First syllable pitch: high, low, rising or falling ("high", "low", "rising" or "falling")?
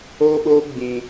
high